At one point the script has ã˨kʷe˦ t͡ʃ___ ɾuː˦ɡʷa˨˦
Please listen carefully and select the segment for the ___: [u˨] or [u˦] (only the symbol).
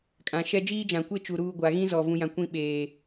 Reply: u˨